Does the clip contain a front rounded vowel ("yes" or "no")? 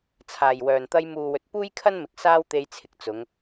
yes